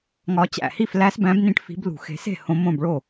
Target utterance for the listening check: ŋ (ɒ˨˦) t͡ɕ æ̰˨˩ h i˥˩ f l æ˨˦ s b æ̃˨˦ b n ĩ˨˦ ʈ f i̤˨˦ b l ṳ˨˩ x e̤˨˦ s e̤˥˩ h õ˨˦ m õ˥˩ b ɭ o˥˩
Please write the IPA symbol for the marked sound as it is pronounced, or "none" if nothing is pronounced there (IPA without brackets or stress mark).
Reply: ɒ˨˦